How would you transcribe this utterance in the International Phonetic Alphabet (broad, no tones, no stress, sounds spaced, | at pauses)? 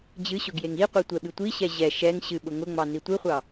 d͡ʑ ɨ ɕ ʊ ɡ j e ŋ i qʷ i tʷ ɛ ɓ ɨ tʷ i ɕ ɛ ʑ ɛ ʃ ɛ ŋ ɕ ɨ ɓ ʊ ŋ ʊ ŋ͡m ɑ n i tʷ ɨ χʷ ɑ